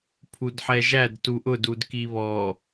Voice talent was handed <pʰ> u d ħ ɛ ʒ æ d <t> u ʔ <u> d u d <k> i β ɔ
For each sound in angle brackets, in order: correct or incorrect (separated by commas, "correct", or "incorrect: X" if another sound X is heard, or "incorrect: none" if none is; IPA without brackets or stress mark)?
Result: correct, correct, incorrect: ʊ, correct